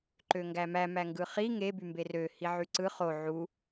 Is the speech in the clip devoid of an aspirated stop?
yes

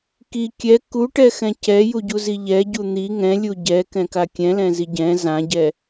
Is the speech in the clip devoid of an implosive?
yes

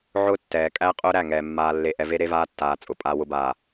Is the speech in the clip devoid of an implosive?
yes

